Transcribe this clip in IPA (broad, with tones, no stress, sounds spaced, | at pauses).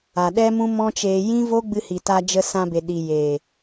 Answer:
a˨ ɗ ɛ˦ m ũ˦ m ɔ̃˦ t͡ʃ eː˧ j ĩ˦ v o˦ ɡ͡b ɨ˧ h i˨ t a˧ d͡ʒ ə˧ s ã˧ b e˨ ɗ i˨ j e˨